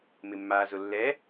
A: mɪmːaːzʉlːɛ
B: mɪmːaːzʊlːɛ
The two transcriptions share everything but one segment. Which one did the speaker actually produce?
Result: B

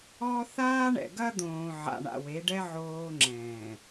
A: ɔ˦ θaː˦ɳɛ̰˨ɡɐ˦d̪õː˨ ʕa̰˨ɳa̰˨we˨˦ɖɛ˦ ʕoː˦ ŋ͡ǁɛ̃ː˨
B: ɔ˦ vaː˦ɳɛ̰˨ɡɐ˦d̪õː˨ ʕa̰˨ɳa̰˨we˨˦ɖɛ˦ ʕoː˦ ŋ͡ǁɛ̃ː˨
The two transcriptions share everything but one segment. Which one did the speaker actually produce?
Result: A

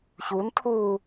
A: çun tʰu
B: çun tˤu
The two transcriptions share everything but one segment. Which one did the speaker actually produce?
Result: A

